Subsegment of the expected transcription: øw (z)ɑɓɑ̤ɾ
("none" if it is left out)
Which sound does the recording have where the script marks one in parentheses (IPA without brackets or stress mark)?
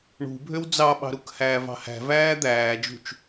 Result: d͡z